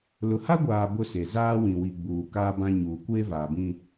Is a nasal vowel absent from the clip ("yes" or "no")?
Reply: no